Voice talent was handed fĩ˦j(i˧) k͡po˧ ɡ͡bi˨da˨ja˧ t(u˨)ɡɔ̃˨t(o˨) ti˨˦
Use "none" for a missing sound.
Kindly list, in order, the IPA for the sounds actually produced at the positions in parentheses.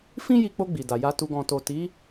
i˧, u˨, o˨

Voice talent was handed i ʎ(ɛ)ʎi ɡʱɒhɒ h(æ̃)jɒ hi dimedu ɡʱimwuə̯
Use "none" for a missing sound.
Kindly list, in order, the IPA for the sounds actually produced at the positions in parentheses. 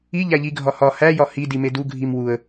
æ, æ

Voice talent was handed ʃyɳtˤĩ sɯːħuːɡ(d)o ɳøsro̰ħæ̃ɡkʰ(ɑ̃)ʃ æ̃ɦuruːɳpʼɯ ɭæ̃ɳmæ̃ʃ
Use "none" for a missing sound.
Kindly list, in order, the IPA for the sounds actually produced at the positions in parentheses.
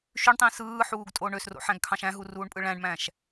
tʼ, ɑ̃

